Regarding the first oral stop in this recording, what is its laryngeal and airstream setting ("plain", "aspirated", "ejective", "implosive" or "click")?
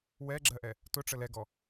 click